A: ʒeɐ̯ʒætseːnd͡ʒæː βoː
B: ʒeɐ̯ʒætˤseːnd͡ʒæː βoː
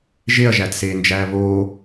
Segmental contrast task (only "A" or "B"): A